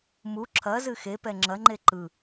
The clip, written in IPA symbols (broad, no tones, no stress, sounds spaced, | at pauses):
m u ǁʰ ɐ z ɨ x e p ɛ ŋ͡ǁ ɐ ŋ͡ǃ e ǃ ɯ